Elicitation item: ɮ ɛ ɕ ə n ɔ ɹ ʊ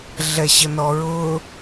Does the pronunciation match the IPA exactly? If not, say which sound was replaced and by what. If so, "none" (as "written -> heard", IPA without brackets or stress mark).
none